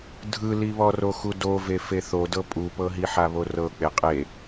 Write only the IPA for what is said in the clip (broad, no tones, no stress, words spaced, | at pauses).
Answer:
dʱɯliβɔro xudove feθodɤ pʼupɤɦiħa βorɤk͡pe qʼe